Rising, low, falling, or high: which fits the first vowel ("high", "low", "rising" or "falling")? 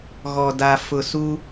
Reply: low